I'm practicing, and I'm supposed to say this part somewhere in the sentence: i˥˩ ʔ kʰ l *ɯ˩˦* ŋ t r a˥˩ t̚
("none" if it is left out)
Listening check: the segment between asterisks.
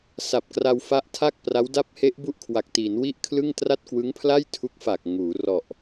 ɯ˥˩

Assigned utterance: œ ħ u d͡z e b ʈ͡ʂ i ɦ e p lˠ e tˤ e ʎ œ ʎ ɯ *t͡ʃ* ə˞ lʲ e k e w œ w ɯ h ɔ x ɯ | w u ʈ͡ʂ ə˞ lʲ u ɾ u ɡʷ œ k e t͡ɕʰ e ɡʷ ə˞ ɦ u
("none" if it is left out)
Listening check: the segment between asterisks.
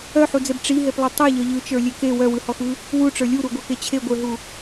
t͡ʃ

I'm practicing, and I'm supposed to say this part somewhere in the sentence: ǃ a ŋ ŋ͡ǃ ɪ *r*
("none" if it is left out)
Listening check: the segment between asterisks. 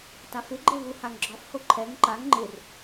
r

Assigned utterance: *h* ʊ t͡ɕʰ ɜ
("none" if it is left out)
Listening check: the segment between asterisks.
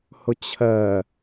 h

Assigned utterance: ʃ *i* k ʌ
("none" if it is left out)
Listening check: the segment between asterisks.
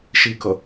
i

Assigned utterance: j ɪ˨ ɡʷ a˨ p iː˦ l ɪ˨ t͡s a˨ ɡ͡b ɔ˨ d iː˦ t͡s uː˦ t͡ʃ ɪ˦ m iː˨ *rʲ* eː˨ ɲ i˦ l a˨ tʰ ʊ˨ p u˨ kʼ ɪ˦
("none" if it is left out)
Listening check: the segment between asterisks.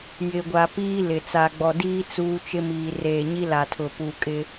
r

